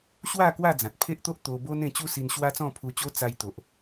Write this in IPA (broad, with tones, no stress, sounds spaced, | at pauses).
ɕ w a˥˧ k w a˥˧ d͡z ã˨ t̚ pʰ e˦ ʔ t̪ o˦ ʔ t̪ o˧ b o˦ n ẽ˧ t͡ɕ u˦ s i˧ n ɕ w a˦ t͡s ɔ̃˥˧ pʰ u˧ t͡ɕ o˦ t͡s a˧ j t̪ o˨ ʔ